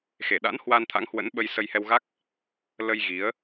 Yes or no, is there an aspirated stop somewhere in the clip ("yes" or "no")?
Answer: yes